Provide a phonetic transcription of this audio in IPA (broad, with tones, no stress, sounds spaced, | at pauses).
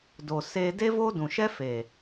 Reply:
d o˨ s eː˧ d e˦ v oː˦ d ũ˨ ʃ ɛ˦ f eː˨